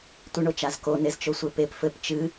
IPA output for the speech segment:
tʷɨɳot͡ʃazko nezt͡ʃosʷepep fɘp t͡ʃɨ

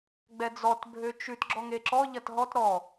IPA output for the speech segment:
ɡ͡bɛd͡zɔt bʱøt͡ʃʉt ɡ͡ǁɔŋeǁɔ ʎɐtɦɔt ɾɔ

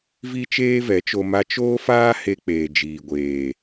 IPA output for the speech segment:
vi˦t͡ʃeː˦vɛ˨˦t͡ʃo˧ ma˧ t͡ʃoː˦faː˦he˧ k͡peː˨d͡ʒiː˨ɡʷeː˨

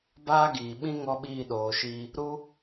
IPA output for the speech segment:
baː˦ɡiː˨ɓĩ˦ ŋɔ˦ɓiː˦˨ɗoː˨ʃi˧ | ɾu˦

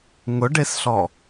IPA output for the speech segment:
ŋʊɖesɬɔ

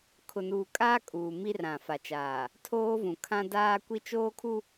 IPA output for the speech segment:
kʰʊ˨nuː˨kʼaː˦ kʼuː˨mi˦rã˨ fa˨t͡ʃaː˨ | tʰoː˦vũ˨kʰã˦ daː˦kʷi˦ t͡ʃoː˦kʰu˦

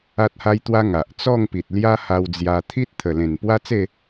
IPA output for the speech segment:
a˦t̚ha˦jt̪wa˦ ŋa˨ʔ t͡sɔ˥˧ŋpi˨t̚ lja˦ha˧wd͡zja˧ t̪ʰi˦t̚t̪ʰə˨˩lẽ˨˩n pwa˦t͡se˥˧

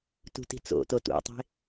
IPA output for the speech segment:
tṳti̤t͡so̰ totṵtˤe̤

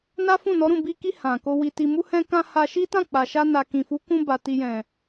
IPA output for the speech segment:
na˦fũ˦˨nɔ˨˦ ɾũ˦˨bi˧ki˧ hã˨ko˧ wi˨ti˨mu˧ hɛ̃˧kã˧ ha˧ ʃi˦tã˦˨k͡pa˨ʃa˧ na˨kĩ˨fu˨˦ kũ˧ba˨ ti˨ jɛ̃˨

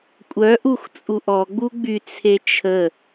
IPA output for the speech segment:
kʷʼœ ʔuxt͡sʼuʔɔɡ͡bu ɡ͡byt͡sʰe t͡ʃʰə

